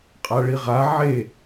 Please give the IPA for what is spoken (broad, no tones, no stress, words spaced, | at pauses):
qʼaɭiʁa ʕe